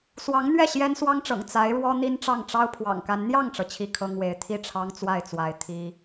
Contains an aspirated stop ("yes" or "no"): yes